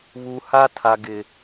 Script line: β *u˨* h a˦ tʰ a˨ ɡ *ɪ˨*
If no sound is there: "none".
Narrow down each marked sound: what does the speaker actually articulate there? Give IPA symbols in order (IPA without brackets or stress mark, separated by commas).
u˨, ɪ˨